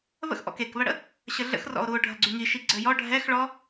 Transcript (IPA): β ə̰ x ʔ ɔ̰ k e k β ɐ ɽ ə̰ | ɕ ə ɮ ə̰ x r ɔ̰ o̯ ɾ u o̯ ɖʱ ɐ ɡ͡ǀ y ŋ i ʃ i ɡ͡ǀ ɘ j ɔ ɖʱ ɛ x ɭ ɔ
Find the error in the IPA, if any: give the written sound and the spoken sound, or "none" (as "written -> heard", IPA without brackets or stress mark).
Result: none